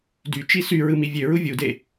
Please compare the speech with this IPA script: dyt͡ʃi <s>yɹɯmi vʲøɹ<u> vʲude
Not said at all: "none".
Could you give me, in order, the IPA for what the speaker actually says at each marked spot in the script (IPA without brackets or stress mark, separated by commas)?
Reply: s, u